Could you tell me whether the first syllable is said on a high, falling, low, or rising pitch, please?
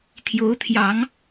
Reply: rising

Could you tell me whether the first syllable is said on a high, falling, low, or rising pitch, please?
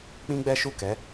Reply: high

